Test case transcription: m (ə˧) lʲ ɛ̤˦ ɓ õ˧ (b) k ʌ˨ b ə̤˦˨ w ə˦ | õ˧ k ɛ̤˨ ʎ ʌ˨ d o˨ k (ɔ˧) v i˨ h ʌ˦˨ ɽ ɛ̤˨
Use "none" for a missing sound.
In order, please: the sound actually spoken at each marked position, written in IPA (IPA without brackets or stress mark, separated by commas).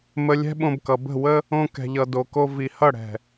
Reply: ə˧, b, o˧